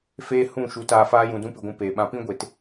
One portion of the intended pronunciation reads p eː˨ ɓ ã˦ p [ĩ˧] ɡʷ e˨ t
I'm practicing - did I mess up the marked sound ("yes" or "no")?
yes